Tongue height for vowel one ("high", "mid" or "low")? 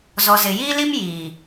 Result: mid